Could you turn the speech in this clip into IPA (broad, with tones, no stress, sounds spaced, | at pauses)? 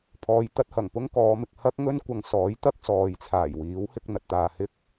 pʰ ɔː˧ j t̪ ɐ˥ t̚ h ɐ˨˩ ŋ p ʊ˥ ŋ k ɔː˨˧ m ɪ˨ k̚ h ɐ˥ k̚ ŋ ɵ˥ n kʷ ɐ˨ ŋ s ɔː˨˥ j t̪ ɐ˥ k̚ s ɔː˨ j t͡sʰ aː˨˩ j w iː˨˥ w h ɪ˧ k̚ n̪ ɐ˨ t̚ t̪ aː˨ h ɪ˥ k̚